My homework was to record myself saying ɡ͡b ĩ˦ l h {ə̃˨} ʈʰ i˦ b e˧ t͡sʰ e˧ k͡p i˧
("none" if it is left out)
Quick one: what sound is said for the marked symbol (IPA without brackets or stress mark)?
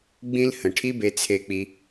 ə̃˨